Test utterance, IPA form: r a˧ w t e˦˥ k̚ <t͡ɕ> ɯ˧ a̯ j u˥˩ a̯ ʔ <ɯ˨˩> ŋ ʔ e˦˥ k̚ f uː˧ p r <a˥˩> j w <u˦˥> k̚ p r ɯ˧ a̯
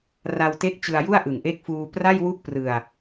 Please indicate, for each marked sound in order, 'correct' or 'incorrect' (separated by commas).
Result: correct, correct, correct, incorrect